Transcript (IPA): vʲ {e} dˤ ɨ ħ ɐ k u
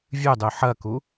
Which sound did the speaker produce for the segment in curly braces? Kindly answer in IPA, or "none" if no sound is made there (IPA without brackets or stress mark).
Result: ɨ